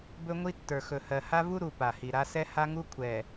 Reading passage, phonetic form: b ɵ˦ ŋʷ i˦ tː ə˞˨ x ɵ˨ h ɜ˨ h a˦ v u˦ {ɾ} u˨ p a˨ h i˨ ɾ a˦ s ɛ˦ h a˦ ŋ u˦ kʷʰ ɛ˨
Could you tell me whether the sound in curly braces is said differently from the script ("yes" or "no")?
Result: no